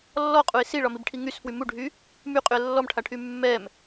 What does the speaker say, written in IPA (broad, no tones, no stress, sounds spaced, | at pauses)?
lː ɔ qʼ u ɪ̯ s i ɭ ɒ m i b ʈʰ i ŋ y s f w y m u ɖʱ y | m y qʼ y ə̯ lː ɔ m ʈʰ a ʈʰ y mː ɛ m